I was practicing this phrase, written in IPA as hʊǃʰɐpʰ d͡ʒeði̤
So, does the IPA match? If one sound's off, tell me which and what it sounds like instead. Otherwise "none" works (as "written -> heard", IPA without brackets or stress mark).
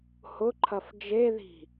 pʰ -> f